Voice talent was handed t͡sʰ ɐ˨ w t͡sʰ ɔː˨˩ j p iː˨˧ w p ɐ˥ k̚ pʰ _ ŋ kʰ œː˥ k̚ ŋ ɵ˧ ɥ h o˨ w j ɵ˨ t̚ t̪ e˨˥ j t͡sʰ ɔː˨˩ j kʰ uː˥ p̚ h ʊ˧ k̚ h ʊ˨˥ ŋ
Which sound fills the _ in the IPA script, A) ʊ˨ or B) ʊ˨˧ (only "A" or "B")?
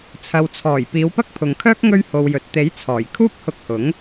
A